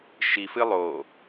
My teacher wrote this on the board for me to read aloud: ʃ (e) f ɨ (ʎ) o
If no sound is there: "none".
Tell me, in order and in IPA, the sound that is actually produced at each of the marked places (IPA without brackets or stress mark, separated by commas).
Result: i, lˠ